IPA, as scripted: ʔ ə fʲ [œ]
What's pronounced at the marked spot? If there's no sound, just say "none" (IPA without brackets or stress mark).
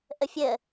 ə